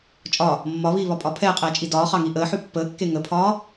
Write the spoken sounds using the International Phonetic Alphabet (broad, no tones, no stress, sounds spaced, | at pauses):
t͡ʃʼ ɒ | mː ɒ β iː β ɒ pʼ ɒ pʰ ɛː qʼ ɛː t͡ʃʼ i d ɒː χ ɑ ŋ i ʔ əː ħ ʉ pː əː kː e ŋ ə pʰ ɒː